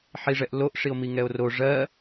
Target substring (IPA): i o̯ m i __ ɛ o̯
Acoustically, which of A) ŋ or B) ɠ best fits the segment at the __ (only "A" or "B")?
A